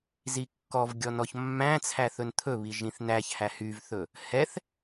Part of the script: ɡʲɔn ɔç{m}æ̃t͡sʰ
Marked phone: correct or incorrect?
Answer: incorrect